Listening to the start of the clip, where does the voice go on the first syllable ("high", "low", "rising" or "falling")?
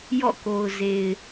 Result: falling